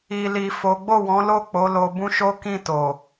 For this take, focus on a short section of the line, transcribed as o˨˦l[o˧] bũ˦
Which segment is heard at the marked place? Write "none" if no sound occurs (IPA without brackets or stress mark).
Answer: o˧